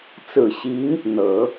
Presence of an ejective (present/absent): absent